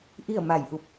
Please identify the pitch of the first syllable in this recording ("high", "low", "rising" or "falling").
falling